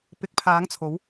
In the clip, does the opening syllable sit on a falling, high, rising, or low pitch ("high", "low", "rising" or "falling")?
rising